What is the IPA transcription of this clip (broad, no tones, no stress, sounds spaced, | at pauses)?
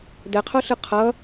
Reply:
d ɛ qʰ o ɬ ɯ qʰ ʌ